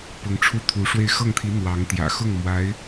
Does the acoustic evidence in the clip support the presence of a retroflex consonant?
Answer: yes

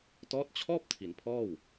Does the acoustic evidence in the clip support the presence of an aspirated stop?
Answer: yes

